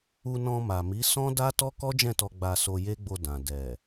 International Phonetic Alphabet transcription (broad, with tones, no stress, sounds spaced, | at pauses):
u˧ n ɔ̃˧ m a˨ m i˨˦ s ɔ̃˦ d a˦ t ɔ˦ k ɔ˦ d͡ʒ ɛ̃˦˨ t ɔ˧ ɡ͡b a˧ s o˧ j e˦ ɡ͡b o˧ d ã˨ d ɛ˨